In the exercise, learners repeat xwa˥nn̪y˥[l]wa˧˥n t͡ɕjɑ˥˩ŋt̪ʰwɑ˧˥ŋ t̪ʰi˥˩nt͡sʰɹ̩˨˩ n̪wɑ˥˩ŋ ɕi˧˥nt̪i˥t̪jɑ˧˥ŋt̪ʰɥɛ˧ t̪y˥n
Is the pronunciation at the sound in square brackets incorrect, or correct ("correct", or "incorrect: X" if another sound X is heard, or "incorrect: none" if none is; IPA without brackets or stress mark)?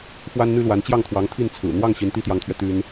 correct